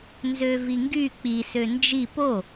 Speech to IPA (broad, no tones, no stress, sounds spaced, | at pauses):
n z ø v i ŋ ɡ y k͡p i s ø n d͡ʒ i p o